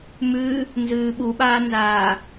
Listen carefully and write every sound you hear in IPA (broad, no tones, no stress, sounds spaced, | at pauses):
m ʉ | n z ʉː ɓ u ɓ aː n z aː